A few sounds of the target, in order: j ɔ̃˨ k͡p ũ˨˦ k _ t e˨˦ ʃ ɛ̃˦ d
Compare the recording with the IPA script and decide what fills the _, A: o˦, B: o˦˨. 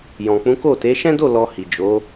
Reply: B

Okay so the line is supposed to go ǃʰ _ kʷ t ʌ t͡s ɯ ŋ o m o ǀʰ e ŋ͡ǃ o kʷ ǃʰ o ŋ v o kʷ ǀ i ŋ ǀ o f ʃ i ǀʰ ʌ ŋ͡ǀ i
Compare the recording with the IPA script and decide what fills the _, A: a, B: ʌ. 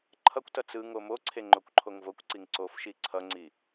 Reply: B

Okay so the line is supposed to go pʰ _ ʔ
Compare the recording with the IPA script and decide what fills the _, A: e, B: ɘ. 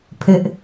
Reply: B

